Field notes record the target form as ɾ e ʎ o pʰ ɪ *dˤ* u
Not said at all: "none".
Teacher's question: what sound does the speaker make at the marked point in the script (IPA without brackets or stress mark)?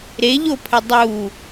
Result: dˤ